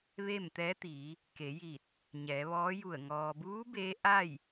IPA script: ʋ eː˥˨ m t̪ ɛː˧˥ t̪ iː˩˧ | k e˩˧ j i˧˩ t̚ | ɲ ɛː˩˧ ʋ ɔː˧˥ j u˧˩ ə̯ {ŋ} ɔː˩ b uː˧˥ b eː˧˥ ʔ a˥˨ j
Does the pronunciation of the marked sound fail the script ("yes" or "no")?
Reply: no